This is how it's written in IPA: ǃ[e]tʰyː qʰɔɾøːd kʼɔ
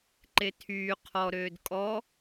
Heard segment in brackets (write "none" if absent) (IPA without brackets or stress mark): e